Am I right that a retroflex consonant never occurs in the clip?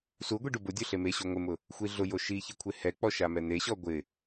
no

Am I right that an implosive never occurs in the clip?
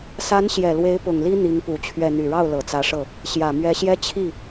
yes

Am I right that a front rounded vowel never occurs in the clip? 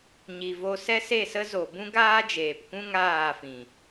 yes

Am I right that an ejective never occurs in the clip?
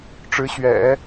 yes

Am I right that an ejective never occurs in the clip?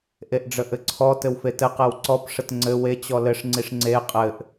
no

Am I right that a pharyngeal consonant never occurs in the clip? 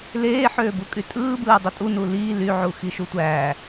no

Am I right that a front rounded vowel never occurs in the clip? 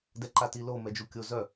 no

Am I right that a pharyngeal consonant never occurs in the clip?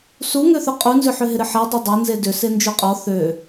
no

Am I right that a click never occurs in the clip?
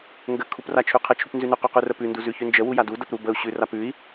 yes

